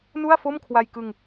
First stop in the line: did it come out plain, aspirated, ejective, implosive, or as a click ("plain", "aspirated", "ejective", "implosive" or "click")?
aspirated